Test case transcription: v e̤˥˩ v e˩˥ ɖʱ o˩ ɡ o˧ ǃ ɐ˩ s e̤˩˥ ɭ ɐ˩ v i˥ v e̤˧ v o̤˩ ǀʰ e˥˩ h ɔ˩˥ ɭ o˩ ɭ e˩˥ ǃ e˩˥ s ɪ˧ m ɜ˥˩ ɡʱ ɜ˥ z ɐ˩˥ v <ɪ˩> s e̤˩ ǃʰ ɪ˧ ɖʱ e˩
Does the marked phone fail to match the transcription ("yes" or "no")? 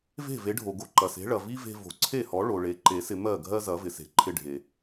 no